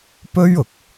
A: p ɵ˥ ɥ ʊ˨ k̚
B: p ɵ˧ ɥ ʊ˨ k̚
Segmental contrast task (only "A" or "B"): A